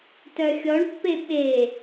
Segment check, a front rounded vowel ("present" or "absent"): present